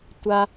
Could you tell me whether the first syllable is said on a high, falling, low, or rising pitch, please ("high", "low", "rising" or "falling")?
high